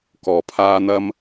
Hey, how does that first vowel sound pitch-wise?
low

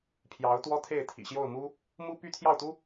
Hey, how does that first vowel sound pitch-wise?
rising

